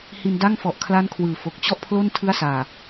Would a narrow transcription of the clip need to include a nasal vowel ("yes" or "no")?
no